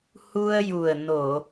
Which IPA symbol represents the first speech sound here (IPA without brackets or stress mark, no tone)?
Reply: h